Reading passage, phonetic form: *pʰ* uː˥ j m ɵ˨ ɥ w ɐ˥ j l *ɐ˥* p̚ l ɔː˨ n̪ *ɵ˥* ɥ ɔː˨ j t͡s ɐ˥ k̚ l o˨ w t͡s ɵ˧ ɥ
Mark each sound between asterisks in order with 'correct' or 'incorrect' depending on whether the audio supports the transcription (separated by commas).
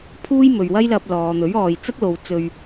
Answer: correct, incorrect, incorrect